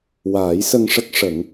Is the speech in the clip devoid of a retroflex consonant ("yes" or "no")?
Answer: no